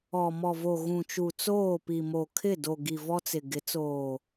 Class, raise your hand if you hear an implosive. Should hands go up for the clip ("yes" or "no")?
no